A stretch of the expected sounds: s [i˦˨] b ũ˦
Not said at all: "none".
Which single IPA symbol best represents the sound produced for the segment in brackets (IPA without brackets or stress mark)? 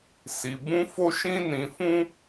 i˧